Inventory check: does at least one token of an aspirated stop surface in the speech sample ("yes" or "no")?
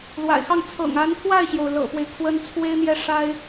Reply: yes